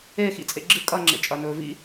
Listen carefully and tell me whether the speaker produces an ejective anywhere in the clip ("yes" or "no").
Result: yes